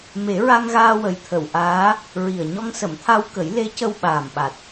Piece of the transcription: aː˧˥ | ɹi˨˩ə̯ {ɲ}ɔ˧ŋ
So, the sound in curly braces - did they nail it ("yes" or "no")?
yes